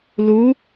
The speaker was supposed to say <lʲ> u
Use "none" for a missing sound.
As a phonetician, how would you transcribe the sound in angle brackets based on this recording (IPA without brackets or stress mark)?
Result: l